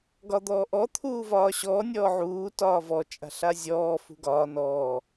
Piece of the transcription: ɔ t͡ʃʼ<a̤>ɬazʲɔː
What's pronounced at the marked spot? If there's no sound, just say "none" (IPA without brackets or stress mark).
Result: a̤